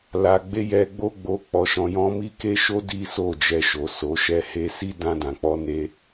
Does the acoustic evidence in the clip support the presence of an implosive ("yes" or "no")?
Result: no